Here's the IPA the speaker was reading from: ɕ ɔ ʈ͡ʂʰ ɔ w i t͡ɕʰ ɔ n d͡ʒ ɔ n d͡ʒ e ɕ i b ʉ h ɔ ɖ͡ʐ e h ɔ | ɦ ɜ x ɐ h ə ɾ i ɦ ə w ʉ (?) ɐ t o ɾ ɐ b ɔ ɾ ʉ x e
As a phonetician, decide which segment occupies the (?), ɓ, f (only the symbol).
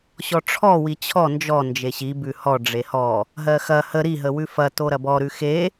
f